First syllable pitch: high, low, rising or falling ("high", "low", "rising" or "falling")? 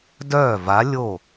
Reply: falling